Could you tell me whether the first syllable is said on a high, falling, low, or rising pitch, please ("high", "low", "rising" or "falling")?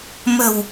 low